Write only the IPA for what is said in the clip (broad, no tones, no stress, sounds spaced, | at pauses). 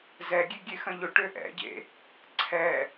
z ɛ ɡʲ e ɡʲ e x ɐ̃ ʎ ʊ ʈ ø ʔ ɛ̰ ɟ ḛ | ǀʰ ɛ